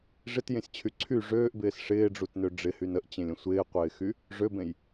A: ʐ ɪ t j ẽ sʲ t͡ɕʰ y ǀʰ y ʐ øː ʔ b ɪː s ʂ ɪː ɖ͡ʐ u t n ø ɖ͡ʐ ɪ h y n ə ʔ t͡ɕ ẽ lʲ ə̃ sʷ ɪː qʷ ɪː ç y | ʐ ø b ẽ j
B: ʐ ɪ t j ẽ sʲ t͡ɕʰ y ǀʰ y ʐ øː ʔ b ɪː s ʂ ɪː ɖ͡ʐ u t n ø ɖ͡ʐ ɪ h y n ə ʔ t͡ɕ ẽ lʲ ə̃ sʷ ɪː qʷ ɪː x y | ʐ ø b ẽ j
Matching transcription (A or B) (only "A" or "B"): B